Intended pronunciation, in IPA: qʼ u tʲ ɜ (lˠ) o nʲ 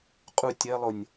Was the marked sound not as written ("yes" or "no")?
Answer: no